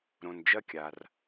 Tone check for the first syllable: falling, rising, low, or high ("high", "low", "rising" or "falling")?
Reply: low